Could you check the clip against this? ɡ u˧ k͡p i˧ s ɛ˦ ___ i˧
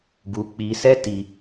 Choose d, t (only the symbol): t